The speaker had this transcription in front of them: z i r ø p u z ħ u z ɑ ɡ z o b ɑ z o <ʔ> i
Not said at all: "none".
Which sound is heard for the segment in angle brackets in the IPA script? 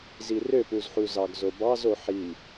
ħ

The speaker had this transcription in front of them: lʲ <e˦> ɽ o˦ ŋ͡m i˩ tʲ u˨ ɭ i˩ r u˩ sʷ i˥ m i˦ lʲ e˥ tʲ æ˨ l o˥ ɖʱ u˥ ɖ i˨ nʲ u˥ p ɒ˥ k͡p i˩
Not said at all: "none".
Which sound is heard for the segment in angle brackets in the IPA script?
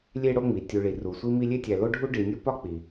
e˦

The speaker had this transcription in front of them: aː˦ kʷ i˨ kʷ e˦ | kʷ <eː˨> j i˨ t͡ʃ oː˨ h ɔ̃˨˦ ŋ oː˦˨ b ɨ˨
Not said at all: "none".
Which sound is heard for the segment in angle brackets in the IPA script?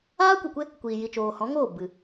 iː˨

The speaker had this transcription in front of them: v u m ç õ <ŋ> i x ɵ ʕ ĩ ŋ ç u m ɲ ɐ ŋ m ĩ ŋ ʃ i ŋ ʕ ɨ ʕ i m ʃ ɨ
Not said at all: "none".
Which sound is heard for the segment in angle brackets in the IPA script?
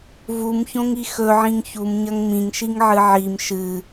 ŋ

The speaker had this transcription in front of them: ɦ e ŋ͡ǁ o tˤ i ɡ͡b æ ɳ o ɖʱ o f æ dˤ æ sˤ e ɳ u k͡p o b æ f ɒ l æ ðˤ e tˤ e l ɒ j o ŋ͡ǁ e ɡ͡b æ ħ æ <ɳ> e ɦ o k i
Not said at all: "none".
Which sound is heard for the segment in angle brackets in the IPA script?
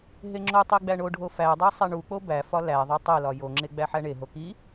ɳ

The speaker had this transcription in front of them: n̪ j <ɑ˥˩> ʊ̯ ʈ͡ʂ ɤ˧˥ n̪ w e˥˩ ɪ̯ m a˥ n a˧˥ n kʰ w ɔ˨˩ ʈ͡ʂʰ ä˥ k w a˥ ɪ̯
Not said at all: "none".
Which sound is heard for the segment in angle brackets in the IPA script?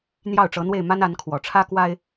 ɑ˥˩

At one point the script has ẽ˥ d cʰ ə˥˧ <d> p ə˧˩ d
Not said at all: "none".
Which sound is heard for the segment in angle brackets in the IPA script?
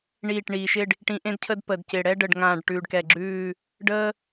d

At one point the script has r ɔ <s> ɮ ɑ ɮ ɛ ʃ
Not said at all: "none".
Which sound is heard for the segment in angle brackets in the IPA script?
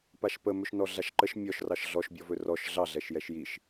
ʃ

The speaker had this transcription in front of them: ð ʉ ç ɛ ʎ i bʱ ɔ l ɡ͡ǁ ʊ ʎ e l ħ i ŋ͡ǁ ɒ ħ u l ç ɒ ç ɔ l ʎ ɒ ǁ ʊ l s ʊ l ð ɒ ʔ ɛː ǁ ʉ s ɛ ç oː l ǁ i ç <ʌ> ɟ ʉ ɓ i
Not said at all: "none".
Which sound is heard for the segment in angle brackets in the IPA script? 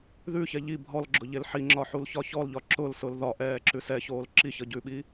ʌ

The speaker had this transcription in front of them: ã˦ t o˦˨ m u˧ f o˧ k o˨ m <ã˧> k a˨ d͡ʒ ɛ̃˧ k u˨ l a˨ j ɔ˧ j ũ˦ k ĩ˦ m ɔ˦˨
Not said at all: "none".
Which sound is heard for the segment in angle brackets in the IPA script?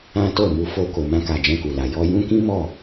ã˧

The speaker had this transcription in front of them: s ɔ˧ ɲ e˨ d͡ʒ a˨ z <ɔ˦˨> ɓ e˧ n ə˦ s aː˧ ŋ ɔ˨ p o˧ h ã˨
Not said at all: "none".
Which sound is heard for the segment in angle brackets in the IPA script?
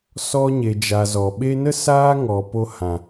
ɔ˨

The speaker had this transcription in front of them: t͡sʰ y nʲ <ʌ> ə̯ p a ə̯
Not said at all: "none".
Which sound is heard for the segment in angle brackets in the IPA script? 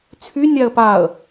a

